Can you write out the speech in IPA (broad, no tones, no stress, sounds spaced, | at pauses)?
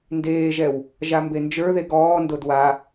n d eː ʒ ɛ w | ʒ a m b e n d͡ʒ ə˞ ð e ɡ ɔː n d o d w a